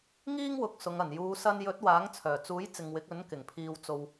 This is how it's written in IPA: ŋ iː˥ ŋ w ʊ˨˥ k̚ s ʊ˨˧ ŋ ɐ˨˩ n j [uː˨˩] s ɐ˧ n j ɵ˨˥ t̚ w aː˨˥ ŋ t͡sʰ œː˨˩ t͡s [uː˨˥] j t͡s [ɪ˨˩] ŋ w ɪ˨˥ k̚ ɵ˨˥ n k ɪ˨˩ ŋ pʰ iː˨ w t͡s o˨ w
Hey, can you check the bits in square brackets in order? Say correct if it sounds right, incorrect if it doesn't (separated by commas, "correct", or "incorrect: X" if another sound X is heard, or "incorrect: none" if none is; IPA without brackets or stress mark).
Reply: incorrect: uː˨˧, correct, incorrect: ɪ˨